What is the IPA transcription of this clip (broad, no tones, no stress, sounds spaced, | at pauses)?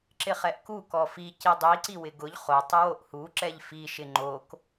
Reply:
ǁ ɪ χ ɛ ʔ k u k ɔ f i c i dˤ i ǀ i w ɪ ɡ ʊ ʎ χ o tˤ ɪ w o ʔ h u ǁ ɛ ʎ f i ʃ ɪ ŋ͡ǃ o k